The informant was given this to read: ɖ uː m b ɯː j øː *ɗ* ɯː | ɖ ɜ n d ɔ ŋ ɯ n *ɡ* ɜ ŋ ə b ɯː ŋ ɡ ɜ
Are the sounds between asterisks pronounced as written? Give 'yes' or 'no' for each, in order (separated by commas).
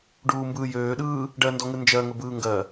yes, no